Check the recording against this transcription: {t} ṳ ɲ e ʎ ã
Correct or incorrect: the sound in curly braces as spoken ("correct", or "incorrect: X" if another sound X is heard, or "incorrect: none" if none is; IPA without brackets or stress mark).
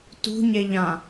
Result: correct